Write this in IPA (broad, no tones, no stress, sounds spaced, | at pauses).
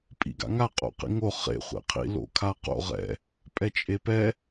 pʼ ḭ ɡ a̰ ŋ a qʼ o̰ q ḭ ŋ o χ ḛ χʷ ḛ qʰ ḭ l o̰ kʰ a q o̰ ʁ ɛ̰ | pʼ ɛ t͡ʃʼ e p ɛ